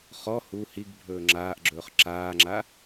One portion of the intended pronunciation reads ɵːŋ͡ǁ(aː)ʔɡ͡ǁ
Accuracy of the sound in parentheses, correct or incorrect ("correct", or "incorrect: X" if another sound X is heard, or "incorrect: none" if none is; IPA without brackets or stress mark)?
correct